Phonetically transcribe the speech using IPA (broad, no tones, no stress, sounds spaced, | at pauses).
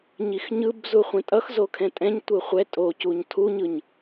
ɲ i x ɲ ɯ b z u χʷ ɛ̃ tʼ ʌ x z o kʰ ɛ̃ tʼ ɛ̃ ɲ tʷ ɯ χʷ ɛ tʼ o c u ɲ tʰ u ɲ ɯ ɲ